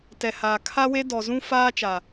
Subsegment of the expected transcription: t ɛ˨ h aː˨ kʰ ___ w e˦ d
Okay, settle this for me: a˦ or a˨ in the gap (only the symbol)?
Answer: a˦